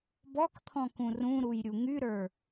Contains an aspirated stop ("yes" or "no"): yes